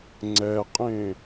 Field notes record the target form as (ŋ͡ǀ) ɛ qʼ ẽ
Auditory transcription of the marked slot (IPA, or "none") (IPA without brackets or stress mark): ŋ͡ǀ